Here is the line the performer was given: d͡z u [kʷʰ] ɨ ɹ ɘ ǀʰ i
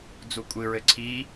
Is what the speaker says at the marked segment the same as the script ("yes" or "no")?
no